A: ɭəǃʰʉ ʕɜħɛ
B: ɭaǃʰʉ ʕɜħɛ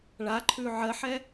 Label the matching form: B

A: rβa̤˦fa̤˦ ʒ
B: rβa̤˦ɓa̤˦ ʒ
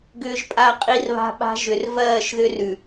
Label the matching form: B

